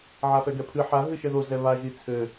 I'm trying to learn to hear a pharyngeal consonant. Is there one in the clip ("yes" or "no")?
yes